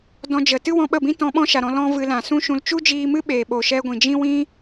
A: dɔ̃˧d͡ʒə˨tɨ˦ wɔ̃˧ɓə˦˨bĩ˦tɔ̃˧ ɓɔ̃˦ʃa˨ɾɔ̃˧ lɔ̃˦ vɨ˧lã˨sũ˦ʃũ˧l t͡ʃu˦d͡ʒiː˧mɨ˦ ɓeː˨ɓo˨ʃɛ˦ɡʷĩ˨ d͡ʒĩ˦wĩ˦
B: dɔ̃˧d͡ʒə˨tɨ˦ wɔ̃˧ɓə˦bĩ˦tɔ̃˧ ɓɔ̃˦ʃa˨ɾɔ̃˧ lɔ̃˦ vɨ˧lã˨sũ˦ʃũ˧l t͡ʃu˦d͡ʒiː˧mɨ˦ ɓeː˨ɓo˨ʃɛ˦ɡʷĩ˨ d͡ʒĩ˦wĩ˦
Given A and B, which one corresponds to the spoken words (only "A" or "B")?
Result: A